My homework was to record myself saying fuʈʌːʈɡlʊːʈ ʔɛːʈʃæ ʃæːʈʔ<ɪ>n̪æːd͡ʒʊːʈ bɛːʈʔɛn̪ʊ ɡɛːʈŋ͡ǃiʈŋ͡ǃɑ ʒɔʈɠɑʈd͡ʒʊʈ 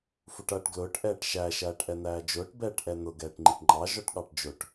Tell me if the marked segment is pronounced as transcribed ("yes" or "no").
no